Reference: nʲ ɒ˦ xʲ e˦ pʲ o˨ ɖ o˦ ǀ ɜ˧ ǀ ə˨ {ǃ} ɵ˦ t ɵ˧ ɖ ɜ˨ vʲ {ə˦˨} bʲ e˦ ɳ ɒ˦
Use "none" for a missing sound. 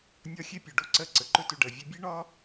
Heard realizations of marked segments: ǃ, ə˧

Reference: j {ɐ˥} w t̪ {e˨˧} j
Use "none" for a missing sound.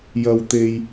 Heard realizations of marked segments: ɐ˥, e˥

